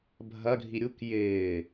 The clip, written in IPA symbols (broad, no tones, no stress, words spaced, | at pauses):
bʱɐ ɡʱiɾʲuk jɪː